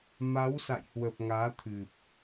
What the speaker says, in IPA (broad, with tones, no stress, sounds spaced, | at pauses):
m a˨˦ w s a̰˧˨ j h w ə˨˩ p̚ ŋ aː˨˦ t̪ʰ ɨ˨˩ p̚